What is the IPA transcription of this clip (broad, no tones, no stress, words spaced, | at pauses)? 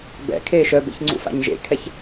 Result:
bɛ̰ kʰeːʃœbḛç ŋ͡ǀṵfa̰ɲʒḛkʰɛç